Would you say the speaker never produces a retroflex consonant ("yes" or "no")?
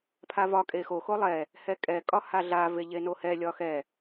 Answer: yes